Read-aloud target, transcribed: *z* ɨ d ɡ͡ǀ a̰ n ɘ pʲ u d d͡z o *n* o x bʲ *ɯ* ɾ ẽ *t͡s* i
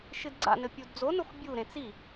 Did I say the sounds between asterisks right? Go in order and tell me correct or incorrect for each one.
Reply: incorrect, correct, incorrect, correct

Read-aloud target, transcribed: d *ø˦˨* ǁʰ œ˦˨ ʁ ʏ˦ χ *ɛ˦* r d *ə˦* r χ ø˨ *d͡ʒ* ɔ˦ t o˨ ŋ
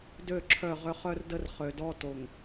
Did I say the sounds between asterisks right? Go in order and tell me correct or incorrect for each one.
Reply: correct, incorrect, correct, incorrect

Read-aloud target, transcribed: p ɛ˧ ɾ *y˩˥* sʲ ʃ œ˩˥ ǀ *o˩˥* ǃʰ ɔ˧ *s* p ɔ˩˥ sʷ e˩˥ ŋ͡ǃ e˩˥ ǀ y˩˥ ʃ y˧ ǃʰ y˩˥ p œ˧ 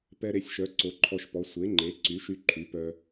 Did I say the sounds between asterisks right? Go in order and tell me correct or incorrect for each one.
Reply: incorrect, correct, incorrect

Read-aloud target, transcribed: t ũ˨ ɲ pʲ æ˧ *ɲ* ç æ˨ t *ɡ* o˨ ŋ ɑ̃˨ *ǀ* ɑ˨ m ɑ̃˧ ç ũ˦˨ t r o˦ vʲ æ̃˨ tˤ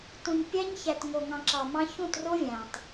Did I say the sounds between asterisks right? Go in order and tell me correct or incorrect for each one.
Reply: correct, incorrect, incorrect

